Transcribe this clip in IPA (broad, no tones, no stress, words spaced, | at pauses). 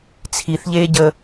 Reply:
t͡sʰiθʎeːɟəː